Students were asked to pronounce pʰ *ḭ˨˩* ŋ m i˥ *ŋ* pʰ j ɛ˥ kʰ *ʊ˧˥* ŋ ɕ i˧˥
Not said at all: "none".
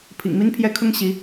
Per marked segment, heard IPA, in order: ḭ˨˩, n, ʊ˥

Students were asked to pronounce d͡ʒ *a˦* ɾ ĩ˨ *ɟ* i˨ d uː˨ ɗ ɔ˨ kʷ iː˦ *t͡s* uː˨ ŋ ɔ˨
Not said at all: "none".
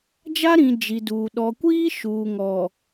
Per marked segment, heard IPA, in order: a˦, d͡ʒ, ʃ

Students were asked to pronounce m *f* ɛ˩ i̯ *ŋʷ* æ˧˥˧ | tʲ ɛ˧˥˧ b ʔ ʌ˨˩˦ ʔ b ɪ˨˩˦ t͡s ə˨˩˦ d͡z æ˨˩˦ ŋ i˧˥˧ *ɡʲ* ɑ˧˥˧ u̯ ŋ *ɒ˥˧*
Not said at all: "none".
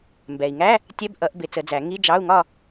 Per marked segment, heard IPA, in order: b, ŋ, d͡ʒ, ɒ˥˧

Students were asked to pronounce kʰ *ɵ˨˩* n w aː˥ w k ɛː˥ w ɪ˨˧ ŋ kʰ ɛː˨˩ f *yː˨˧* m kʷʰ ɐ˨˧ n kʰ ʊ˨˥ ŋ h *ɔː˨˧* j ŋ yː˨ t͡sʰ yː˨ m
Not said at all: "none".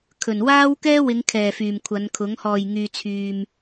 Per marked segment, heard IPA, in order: ɵ˨˩, yː˨˩, ɔː˨˩

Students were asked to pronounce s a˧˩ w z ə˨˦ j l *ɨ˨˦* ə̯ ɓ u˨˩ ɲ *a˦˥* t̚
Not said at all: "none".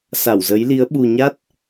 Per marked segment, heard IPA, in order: i˨˦, a˦˥

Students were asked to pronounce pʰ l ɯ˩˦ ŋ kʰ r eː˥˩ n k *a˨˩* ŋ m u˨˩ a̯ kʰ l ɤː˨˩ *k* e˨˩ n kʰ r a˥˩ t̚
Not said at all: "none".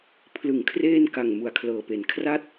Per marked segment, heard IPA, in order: a˨˩, p

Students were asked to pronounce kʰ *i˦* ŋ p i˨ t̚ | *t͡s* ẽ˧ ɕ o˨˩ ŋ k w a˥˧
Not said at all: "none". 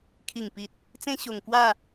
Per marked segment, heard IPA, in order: i˨˩, t͡s

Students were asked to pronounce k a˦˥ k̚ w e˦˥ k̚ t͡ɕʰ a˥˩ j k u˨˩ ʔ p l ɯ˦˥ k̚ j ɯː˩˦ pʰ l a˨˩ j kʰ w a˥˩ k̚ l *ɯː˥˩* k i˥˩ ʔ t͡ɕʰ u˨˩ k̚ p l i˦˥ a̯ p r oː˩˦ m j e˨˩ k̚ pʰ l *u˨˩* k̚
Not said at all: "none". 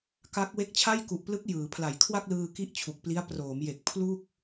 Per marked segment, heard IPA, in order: ɯː˧, u˥˩

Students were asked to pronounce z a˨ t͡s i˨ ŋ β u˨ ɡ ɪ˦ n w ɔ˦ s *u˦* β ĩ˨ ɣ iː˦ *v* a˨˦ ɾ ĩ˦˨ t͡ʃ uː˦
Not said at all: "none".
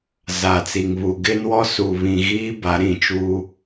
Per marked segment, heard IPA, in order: u˨, b

